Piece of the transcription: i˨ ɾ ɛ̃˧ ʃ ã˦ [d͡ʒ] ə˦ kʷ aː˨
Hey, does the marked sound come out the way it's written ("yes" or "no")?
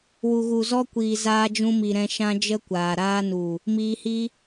yes